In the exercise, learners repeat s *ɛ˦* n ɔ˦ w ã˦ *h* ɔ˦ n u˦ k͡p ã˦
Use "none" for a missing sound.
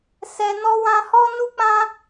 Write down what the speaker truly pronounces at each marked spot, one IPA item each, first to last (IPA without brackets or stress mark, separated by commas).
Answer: ɛ˦, h